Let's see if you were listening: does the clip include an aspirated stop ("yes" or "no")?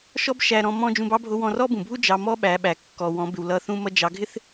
no